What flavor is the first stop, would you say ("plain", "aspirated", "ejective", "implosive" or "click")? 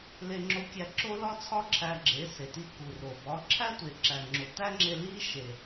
click